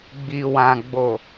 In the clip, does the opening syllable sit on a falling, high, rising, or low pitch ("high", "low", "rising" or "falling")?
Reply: low